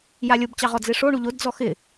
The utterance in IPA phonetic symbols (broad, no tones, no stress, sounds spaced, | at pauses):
j a lʲ o b t͡ɕ ɑ ʁ ɔ d͡z e ʂ o ɳ u ʎ o d d͡z ɔ x ɪ